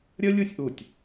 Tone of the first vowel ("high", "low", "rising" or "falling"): high